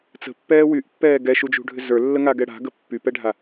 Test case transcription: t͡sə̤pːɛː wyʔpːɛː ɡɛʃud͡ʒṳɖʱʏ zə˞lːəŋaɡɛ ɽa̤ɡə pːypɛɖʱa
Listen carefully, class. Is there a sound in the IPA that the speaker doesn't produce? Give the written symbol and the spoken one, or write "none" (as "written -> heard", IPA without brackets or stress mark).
none